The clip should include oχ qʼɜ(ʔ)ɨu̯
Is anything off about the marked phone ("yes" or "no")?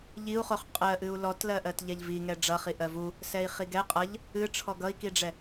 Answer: no